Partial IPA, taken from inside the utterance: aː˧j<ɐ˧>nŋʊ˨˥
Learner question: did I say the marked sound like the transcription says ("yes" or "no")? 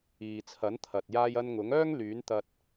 yes